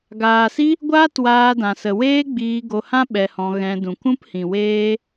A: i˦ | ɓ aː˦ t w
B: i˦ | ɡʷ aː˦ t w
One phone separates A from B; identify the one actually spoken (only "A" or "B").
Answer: B